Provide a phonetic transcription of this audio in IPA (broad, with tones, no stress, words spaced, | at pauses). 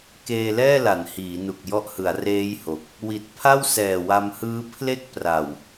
keː˧lɛː˥˩la˩˦n hiː˩˦nu˨˩k̚ jɔ˦˥ʔhɯ˩˦a̯ reː˦˥j ho˨˩k̚ | wi˨˩t̚ pʰa˥˩wsɛː˨˩wa˧mhɯː˦˥ pʰle˥˩k̚pra˨˩w